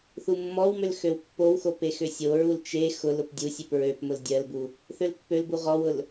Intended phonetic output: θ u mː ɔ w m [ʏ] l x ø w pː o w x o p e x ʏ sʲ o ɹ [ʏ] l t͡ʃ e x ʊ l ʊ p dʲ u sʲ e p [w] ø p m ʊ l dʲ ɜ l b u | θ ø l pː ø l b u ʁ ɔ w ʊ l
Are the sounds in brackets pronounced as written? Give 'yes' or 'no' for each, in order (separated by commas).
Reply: yes, no, no